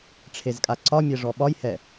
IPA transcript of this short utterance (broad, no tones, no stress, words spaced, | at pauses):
ʈ͡ʂʰezkʼaǀɒmʲɛ ʐɔɓɒjhɛ